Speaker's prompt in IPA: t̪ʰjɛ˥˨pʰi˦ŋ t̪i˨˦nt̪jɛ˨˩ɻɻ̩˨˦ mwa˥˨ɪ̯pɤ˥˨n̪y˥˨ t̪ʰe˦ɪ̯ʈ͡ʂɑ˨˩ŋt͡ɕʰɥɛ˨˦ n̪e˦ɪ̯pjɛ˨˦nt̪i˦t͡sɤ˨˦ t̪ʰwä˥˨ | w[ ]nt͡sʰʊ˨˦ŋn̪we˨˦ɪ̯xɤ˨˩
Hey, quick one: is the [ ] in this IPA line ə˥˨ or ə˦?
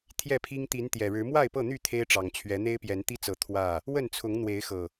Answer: ə˥˨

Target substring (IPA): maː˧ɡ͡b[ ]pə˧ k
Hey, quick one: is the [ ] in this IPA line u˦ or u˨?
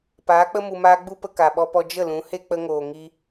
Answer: u˦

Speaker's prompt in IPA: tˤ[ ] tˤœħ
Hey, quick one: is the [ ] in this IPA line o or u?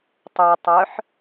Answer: u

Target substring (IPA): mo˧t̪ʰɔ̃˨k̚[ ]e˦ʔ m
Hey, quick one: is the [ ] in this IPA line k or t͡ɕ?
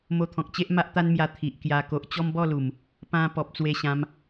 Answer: t͡ɕ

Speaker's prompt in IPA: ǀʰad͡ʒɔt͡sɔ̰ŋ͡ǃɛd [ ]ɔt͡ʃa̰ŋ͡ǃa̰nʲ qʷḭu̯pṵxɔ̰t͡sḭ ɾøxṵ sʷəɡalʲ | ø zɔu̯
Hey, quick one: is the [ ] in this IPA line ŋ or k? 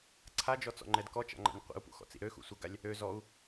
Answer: k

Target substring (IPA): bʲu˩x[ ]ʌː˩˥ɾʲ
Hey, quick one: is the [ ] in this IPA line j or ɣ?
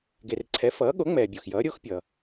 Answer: j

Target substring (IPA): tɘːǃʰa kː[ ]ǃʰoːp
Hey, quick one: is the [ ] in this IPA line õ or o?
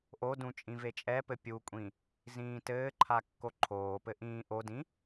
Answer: o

